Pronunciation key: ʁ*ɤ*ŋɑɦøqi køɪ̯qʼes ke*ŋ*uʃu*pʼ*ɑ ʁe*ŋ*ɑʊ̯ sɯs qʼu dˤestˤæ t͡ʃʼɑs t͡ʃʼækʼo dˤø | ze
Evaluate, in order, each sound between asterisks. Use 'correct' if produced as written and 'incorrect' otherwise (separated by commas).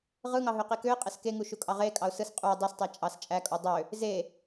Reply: incorrect, correct, incorrect, incorrect